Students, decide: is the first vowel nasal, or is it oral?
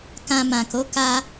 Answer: nasal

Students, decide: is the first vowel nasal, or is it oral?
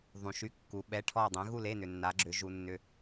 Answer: nasal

